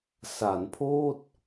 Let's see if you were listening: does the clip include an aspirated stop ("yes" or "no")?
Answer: yes